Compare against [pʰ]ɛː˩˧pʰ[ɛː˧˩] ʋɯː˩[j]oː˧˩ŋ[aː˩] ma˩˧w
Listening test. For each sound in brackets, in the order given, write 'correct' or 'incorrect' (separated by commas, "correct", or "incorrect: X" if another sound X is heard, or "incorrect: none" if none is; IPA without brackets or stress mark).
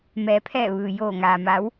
incorrect: m, correct, correct, correct